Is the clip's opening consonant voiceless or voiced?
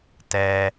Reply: voiceless